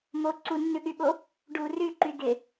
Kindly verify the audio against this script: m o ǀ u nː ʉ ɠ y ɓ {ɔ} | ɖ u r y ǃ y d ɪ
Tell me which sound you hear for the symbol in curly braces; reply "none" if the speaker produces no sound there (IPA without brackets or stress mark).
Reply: o